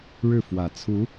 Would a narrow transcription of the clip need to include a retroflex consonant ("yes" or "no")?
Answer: yes